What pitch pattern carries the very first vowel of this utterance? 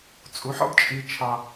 rising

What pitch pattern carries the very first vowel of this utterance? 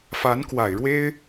rising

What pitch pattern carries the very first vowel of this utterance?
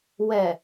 low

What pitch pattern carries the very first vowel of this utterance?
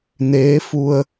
rising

